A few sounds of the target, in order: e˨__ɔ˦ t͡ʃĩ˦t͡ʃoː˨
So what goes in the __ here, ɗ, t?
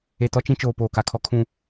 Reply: t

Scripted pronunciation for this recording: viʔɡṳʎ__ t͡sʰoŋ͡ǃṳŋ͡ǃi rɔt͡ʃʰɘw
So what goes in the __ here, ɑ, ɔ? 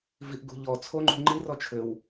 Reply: ɔ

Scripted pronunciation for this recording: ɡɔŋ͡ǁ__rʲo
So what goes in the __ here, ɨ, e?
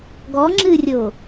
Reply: ɨ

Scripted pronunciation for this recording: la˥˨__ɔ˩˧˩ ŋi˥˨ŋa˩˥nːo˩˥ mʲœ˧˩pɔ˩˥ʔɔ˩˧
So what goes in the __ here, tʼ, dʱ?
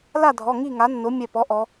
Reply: dʱ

